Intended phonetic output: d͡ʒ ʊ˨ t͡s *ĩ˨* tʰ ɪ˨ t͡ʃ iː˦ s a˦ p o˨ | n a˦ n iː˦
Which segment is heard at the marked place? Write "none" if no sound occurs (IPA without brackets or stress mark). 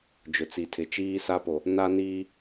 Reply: i˨